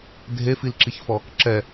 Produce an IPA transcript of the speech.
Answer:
dʱefilǁiçfɔ | ǁɛ

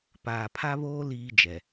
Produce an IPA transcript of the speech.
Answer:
paː˨pʰa˦βoː˦ liː˦d͡ʒɛ˨

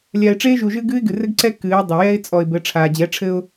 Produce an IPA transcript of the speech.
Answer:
lʲa˨ɪ̯ʈ͡ʂeː˦ʒu˨ʒɨː˦ɡ ɨː˦ɪ̯ɡɨ˨ rɘ˦ɡǀɛ˦ kɨː˨˦ɪ̯dˤɐ˨jɛ˦ɪ̯ t͡sʼɔ˨ɪ̯bɘ˨˦ ʈ͡ʂʰaː˨d͡ʑɛ˨˦ʈ͡ʂʰɘ˦ʊ̯

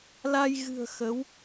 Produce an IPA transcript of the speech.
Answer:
la˧j ɣɨ̤˨˩ə̯ xə˨˦w

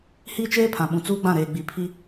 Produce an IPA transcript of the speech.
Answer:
hiː˦t͡ʃeː˦ pʰã˨ɓũ˨ t͡suː˦ɡ͡bã˦˨ɾeː˨ɡ͡bi˨ pʰi˦

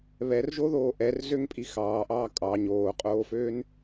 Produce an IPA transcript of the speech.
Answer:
βɛrʒoðoː ʔɛrzøŋpʼi xɑːʔɑː kʼɑ ɲoːqʼoːføːn

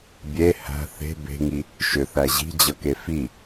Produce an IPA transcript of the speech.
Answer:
bʲe hæ̤ θe̤ be̤ŋi | ʃʏθæ ʑi̤d͡ʑʌke fi

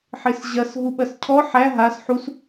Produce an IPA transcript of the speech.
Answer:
ħɪsʑɐs ɦuɓɐscʰɔ ħæ ɦas ħus

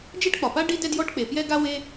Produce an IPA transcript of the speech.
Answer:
d͡ʒe˥ʈk͡pɒ˩pa˥ ɖi˥dɛ˥djɔ˥ʈk͡pe˩ pjɛ˥ɡa˥ we˥

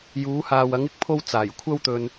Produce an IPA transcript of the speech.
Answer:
juː˨˧haː˨w ɐ˨˧ŋɪ˨˥k̚pʰo˧w t͡saː˨˩jkʷʰɐ˥wt̪ɵ˧n

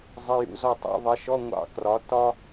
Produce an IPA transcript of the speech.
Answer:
zˤɪ˧˥˧jṵ˧˥˧zɔ˥˧tˤṵ˧˥˧ ðˤɪ˨˥ʃɔ˧˥˧ ŋʷɑ̰˥ krɒ˨˥tːɒ˥

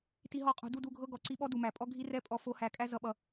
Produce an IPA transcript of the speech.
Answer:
ti˧ɦɔ˦˨qʼo̤˧ du˦˨du˦˨ɡʱɤ˦ ɡɔ˨ǀi˧ɓɔ˦ du˨mæ˨pʼɔ˦ ɡʱi˧ rɛ˦pʼɔ˧ fo˧hæ˨˦ kʼæ˧ zʌ˨ɓʌ˨

